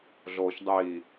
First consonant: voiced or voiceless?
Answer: voiced